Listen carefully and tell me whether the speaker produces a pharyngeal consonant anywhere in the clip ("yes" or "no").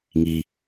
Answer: no